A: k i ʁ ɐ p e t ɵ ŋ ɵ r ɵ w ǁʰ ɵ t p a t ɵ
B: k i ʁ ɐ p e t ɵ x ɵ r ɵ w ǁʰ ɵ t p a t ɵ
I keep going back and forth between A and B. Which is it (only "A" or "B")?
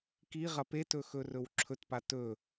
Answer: B